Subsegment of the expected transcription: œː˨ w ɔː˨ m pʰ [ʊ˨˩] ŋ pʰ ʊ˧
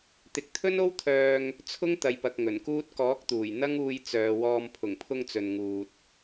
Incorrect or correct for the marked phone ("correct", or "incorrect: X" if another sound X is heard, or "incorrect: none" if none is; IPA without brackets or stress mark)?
correct